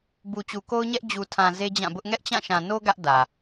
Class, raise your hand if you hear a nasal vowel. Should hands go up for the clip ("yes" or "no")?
yes